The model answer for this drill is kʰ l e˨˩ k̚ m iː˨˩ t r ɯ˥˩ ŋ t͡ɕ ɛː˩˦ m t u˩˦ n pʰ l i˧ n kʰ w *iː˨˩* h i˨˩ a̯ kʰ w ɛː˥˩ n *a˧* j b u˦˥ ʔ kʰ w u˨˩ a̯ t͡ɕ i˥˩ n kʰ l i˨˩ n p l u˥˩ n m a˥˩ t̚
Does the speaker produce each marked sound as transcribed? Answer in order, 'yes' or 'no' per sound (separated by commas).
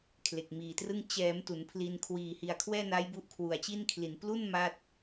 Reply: yes, no